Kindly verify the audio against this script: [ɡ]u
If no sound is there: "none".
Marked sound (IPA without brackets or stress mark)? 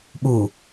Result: ɓ